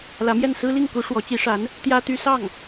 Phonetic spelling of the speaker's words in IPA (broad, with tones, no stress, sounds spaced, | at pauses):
l ä˧˥ m j ɛ˥˩ n s ɹ̩˥ l i˥˩ ŋ k u˧˥ ʂ w ɔ˧˥ t͡ɕ i˧˥ ʂ a˧˥ n | t̪ j ä˥ t̪ y˥ s ɑ˥˩ ŋ